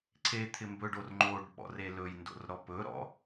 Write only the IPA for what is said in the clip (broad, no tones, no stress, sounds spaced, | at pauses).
ǀʰ e t̪ʰ ɪ m b ɵ ɖ o r ŋ͡ǃ o ɖ ɓ ɔ̰ r e l ɵ j n d o̰ r ɾ ɔ p ɵ ɾ ɔ̰